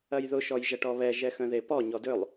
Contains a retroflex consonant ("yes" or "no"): yes